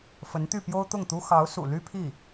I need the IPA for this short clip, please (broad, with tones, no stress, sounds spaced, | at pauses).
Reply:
f ə˧˥ n t̪ y˥˩ p j o˥ ʊ̯ t̪ ʊ˥˩ ŋ t̪ u˥ x ɑ˧˥ ʊ̯ s ṵ˨˩ l y˥ pʰ i˥˩